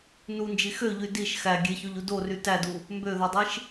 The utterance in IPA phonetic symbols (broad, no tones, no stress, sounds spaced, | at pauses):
n u n d͡ʒ i x ø ʎ y d i ʃ x æ ɡʲ e ç o ʎ u d o r y t æ d u | m b ø ð o dˤ i ʃ